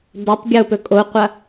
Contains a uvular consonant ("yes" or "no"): yes